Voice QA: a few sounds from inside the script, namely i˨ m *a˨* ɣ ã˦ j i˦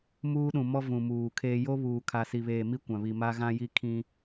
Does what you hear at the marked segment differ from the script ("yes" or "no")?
yes